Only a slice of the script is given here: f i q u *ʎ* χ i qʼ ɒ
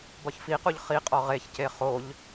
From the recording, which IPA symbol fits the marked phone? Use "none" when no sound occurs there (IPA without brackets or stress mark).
ʎ